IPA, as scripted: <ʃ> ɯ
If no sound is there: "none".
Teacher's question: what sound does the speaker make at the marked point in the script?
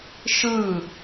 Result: ʃ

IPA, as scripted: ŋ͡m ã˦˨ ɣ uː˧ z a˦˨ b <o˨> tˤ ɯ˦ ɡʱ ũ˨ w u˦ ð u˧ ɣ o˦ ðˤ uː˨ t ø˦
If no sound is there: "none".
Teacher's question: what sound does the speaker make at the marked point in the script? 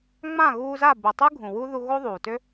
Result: u˨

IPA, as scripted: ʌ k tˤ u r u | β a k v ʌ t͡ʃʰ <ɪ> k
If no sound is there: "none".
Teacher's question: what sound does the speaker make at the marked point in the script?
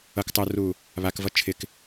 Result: ɪ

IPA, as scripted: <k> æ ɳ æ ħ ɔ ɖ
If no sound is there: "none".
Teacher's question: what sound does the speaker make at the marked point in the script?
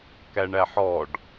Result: k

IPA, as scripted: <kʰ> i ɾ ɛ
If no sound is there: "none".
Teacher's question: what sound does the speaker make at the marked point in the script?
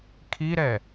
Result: kʰ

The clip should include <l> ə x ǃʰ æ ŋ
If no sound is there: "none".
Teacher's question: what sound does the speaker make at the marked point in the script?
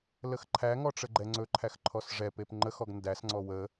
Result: l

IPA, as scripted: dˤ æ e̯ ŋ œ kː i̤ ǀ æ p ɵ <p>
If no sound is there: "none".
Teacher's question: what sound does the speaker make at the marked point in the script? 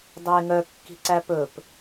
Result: p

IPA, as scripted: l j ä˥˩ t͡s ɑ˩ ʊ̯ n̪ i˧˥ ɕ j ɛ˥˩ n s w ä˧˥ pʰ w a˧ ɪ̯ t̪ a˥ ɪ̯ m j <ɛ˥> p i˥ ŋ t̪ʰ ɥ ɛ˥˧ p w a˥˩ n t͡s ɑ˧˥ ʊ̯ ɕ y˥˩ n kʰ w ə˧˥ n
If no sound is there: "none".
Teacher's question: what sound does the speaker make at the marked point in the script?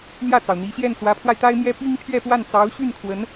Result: ɛ˥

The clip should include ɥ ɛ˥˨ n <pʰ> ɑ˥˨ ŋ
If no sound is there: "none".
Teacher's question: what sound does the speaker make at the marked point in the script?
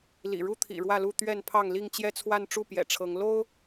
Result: pʰ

